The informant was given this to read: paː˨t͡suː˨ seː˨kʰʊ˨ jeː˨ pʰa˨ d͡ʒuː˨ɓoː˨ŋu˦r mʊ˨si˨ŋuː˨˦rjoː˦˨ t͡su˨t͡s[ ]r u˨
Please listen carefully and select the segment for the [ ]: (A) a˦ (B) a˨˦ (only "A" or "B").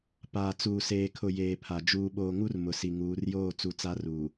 B